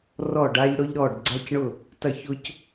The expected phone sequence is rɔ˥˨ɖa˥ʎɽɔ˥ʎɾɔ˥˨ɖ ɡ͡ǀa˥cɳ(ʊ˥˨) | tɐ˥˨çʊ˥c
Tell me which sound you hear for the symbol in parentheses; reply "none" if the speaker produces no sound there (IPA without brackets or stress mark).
ʊ˥˨